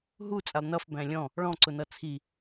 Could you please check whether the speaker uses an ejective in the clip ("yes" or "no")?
yes